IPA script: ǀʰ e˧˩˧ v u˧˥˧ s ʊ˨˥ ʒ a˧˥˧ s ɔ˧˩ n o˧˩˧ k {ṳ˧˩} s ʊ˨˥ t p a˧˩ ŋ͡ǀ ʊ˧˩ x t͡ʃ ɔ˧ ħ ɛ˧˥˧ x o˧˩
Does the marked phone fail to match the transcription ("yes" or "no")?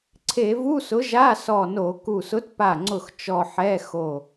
yes